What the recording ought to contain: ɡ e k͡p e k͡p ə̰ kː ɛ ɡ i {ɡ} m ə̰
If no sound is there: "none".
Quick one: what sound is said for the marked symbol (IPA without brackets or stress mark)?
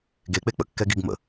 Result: ɡ